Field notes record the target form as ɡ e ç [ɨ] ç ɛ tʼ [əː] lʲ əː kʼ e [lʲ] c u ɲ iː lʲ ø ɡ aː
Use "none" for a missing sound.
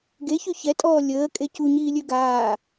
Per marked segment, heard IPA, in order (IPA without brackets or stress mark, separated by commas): y, ɔː, none